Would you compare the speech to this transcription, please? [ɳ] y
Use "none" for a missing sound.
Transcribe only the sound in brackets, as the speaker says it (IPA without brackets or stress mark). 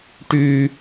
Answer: ʈ